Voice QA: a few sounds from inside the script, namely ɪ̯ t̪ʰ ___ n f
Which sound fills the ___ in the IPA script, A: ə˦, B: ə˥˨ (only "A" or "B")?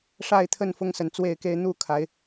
B